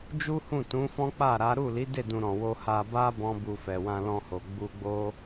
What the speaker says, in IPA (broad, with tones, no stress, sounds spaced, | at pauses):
d͡ʒ u˦ h ũ˦˨ t ũ˨˦ f ɔ̃˦ k͡p a˦˨ ɾ a˨˦ ɾ u˦˨ l i˨˦ d e˦˨ d ũ˧ ɾ ɔ̃˨ w o˧ h a˧ b a˦ b ɔ̃˦ b u˧ f ɛ˨ w ã˧ l ɔ̃˧ h o˨ ɡ͡b u˧ ɡ͡b o˦